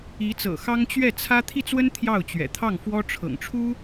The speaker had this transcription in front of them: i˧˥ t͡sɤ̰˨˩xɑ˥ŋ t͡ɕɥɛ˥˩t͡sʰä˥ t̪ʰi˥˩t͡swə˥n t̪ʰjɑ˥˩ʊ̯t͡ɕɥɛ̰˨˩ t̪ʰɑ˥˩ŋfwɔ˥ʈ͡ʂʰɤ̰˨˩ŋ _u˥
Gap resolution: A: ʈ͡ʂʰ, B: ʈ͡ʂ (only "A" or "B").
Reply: A